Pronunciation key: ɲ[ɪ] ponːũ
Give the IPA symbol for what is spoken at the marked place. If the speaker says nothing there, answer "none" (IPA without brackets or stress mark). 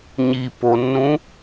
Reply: i